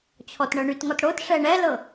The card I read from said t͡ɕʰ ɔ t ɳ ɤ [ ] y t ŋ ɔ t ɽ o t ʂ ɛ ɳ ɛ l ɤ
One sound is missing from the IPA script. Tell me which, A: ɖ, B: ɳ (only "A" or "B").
B